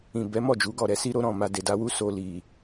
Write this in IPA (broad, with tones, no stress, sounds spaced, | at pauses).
ĩ˨ b ɛ˨˦ m ɔ˦˨ d͡ʒ u˨˦ ɡ ɔ˦˨ ɾ ɛ˨˦ s i˦ ɾ o˦ ɾ ɔ̃˦˨ m a˧ d e˨ d a˧ w u˦ s o˧ l i˨